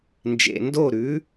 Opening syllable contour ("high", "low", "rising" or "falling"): low